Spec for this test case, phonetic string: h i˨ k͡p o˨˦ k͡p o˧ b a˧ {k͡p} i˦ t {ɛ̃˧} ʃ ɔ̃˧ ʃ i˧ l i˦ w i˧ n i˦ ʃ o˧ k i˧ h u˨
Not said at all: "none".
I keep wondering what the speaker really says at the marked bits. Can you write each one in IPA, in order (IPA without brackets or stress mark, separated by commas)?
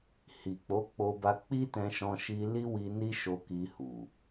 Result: k͡p, ɛ̃˧